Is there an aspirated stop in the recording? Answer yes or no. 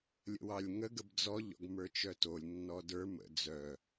no